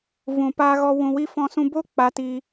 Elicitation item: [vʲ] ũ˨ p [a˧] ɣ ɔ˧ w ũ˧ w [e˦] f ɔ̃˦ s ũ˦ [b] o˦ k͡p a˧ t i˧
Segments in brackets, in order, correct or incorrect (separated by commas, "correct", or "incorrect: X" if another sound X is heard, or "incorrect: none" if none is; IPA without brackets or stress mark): incorrect: v, incorrect: aː˧, incorrect: i˦, correct